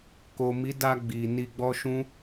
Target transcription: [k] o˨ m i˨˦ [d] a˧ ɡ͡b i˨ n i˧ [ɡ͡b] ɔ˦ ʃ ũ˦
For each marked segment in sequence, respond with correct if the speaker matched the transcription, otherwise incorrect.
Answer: correct, correct, correct

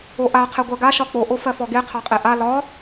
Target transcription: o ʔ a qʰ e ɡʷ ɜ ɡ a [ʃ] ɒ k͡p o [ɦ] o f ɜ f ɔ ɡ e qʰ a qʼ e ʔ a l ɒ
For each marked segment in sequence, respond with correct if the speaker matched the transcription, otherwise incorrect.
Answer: correct, incorrect: ʔ

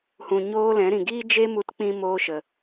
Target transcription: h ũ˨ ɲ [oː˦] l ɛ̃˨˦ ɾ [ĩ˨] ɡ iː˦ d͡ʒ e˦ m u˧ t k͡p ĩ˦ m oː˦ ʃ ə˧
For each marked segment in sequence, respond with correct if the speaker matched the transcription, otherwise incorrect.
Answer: correct, correct

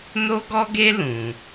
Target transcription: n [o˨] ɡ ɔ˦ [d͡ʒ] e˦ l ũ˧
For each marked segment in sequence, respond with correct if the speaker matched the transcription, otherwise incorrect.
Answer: incorrect: o˦, incorrect: ɡ

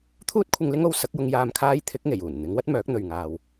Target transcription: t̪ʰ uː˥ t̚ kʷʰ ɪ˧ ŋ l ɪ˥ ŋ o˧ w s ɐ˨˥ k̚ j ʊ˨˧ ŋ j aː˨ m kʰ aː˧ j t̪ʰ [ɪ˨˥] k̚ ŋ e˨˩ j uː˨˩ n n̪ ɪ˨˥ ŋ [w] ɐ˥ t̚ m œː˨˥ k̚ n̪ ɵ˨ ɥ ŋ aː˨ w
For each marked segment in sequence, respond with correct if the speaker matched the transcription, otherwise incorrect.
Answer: correct, correct

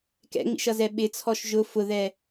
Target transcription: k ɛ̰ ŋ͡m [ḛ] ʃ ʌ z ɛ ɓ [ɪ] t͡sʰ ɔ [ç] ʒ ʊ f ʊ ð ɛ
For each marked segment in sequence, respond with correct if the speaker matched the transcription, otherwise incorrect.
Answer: incorrect: ḭ, correct, incorrect: ʃ

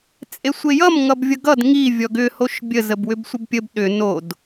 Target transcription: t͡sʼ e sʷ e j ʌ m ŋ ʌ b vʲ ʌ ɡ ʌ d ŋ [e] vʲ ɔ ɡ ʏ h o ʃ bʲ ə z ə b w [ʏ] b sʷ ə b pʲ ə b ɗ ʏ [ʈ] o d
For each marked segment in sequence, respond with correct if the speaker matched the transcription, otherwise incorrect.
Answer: incorrect: i, correct, incorrect: n

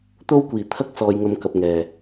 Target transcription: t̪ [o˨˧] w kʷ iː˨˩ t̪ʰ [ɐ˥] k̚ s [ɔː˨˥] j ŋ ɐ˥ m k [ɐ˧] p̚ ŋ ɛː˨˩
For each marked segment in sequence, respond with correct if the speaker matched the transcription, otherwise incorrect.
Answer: incorrect: o˥, correct, incorrect: ɔː˥, correct

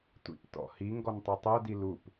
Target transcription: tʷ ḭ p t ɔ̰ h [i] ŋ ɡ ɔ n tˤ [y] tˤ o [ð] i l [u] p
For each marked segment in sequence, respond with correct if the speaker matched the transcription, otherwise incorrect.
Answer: correct, correct, incorrect: d, correct

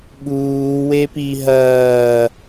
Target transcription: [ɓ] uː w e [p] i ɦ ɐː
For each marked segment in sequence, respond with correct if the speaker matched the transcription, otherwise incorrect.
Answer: correct, correct

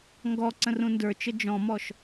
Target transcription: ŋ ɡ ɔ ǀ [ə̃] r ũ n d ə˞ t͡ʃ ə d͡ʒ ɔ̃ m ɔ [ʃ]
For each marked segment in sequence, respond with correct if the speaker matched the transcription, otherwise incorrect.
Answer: correct, correct

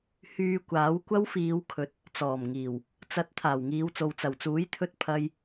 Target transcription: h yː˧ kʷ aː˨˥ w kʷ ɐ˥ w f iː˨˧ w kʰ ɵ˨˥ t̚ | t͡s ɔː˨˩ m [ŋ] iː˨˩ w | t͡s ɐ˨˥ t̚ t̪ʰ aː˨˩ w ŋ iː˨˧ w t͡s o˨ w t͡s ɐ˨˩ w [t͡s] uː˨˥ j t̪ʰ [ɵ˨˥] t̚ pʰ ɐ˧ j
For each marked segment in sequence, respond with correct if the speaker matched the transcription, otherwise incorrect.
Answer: correct, correct, incorrect: ɵ˧

